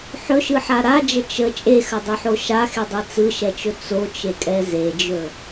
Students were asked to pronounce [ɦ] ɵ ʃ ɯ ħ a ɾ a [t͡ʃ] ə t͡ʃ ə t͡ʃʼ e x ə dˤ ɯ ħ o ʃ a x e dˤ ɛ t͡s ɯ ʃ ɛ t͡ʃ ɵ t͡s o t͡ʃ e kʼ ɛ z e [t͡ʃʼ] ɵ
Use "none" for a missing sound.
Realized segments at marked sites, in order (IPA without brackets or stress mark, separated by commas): ħ, d͡ʒ, d͡ʒ